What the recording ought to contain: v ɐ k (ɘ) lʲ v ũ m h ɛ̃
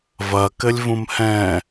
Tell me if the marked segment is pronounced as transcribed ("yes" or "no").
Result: yes